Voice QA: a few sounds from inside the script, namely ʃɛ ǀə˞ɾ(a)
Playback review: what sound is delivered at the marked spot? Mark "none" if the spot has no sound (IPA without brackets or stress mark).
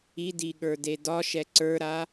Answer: a